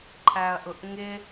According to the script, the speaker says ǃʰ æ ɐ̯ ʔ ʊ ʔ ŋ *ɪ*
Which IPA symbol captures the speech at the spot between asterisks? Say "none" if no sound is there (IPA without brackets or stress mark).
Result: ɪ